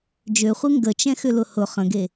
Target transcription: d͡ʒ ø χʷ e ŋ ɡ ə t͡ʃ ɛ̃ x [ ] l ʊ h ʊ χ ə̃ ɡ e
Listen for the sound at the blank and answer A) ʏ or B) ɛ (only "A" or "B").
A